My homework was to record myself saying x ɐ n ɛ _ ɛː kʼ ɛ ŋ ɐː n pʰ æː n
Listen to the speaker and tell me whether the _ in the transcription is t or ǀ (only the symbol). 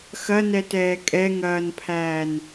t